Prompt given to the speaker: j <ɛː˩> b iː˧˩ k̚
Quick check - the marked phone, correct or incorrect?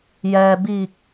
correct